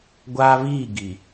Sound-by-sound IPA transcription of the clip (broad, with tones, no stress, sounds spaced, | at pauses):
ɡʷ aː˦ β iː˦˨ ɡ i˨